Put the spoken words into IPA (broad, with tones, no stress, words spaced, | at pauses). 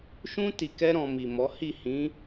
ʃũ˦ ti˧kɛ˦ ɾɔ̃˧mi˨mɔ˨˦ hi˦˨hĩ˨˦